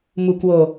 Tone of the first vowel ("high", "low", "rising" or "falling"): low